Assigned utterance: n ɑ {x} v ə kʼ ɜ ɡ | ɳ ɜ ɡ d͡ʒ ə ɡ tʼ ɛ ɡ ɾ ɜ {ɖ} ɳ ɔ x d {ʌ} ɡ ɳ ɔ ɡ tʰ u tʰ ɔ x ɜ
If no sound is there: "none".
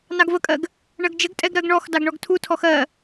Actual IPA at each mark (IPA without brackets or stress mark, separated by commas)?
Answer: ɡ, ɡ, ɑ